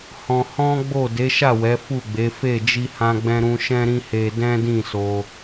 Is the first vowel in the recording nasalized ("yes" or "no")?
yes